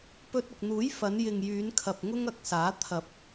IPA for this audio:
p ɵ˧ t̚ ʊ˨ k̚ n̪ uː˨˥ j f ɐ˨˧ n j ɪ˨ ŋ j yː˨˧ n kʰ ɐ˨ p̚ ŋ ʊ˥ ŋ ɐ˨˥ k̚ s aː˨˥ t̪ʰ ɐ˨˥ p̚

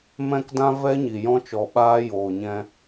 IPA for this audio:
m ɛ̃˦ k d ã˦ v ɛ˦ ɲ i˨ j ɔ̃˧ t͡ʃ ɔ˨ ɓ aː˧ j oː˨ ɲ ɛ̃˧

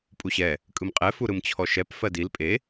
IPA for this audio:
pʼ u ɕ ɛ | kʼ ɯ m qʼ ɛ f u ɾ ɯ m t͡ɕʰ ɔ ʃ ɛ p f ɜ d i l pʼ e

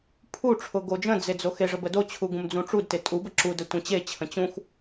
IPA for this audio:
pʰ u ʈ͡ʂʰ ʊ ɡ o d͡ʒ ə̃ d͡z e d͡z o x e ʐ ə b ə d o t͡ɕʰ u ɡ ũ m d͡z ũ ʈ͡ʂ u d t e tʼ u b ə ǁ u d ə tʷ ẽ t͡ɕ e t͡ɕʰ ə̃ t͡ɕ ũ x

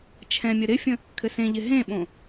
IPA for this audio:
t͡ʃʰ ɛ̃ mʲ ə ɾ ɪ fʲ ə̃ | kʰ ɘ s ẽ ʎ ɪ ɦ ẽ ɓ õ

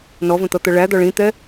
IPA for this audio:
n ɔ v ə̃ t̪ ʌ t̪ ʌ ɭ æ d̪ ɒ ɭ ĩ t̪ ɛ

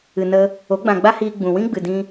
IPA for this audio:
ɨ˨ n ə˧ | o˨˦ ɡ͡b ã˨ ɡ͡b a˦ h iː˧ ɡ͡b ũ˨ w ĩ˦ ɡ͡b ɨ˨ d ĩ˧

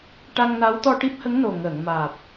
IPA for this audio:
ʈ a˧ ŋ n a˧˥ w t̪ ɔ˧ ʈ i˦˥ p̚ h ə˧˥ ŋ n o˨˩ ŋ əː˨˩˨ ŋ m aː˨˩ p̚

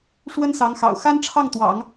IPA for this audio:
ʂ w ə˥ n s ɑ˧˥ ŋ x ɑ̰˨˩ ʊ̯ x a˥ n ʈ͡ʂʰ ɑ˥˩ ŋ t̪ w ɑ̰˨˩˦ ŋ

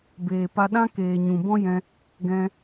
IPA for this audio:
b eː˨ p a˧ ɗ ã˦ k eː˨ ɲ ũ˨ b ɔ̃˦ j ɛ̃˧ | ɡ ɛ̃˧

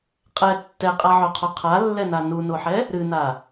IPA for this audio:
qʼ ɛ tː ɛ qʼ a ʕ o qʰ o qʰ a lː ɛ n a n u n o ħ ɛ | ɾ ɨ n a

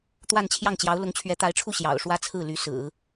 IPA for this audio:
t̪ w a˥˧ n t͡ɕʰ j ɑ˥˩ ŋ t͡ɕ j ɑ˧˥ ʊ̯ l ʊ˧˥ ŋ t͡ɕʰ ɥ ɛ˧˥ t̪ a˧˥ ɪ̯ ʈ͡ʂʰ u˥˩ ɕ j ɑ̰˨˩ ʊ̯ ʂ w ä˥ t͡sʰ ɹ̩˥˩ l y˧˥ s ɹ̩˨˩˦

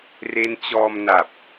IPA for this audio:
r e˦˥ n t͡ɕ ɔː˧ m n a˨˩ p̚

